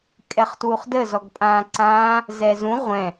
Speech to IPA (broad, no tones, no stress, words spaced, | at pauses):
kʼɛχtwuχdə zɔɡpʼãːǀãː | zɛzũ ʁʷɛ̃